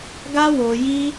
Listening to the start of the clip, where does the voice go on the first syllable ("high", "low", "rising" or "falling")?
high